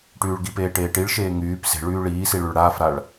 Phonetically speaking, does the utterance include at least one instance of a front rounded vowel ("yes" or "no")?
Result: yes